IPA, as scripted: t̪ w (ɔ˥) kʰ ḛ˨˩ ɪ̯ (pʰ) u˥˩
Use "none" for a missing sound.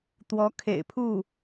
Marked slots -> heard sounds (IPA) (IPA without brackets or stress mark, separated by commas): ɔ˧˥, pʰ